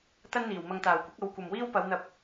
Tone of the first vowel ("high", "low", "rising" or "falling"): high